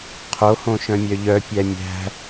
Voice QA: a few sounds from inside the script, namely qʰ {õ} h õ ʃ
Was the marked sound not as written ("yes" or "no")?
yes